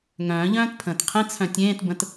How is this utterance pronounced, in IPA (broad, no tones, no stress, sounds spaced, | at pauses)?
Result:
ŋ œ̃ː ʎ œ̃ː t pʰ ə̃ː t qʰ ẽ t͡sʰ œ̃ tʲ ẽː t b ə̃ t